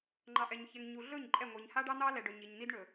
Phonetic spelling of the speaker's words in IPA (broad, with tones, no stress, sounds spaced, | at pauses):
ŋ͡ǃ ɑ˨ ʔ ɛ˨ ɲ ç ɛ˨ ŋ ɲ u˨ ɮ ɵ˦˨ ɲ ǃʼ ɛ˦˨ ŋʷ i˨ ɲ h a˦ ɖ ɑ˦ n̪ ɑ˦ l ɛ˨ ɖ ɵ˨ ɲ i˨ ɲ n̪ i˦ d ɳ ɵ˨